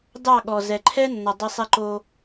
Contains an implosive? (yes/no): yes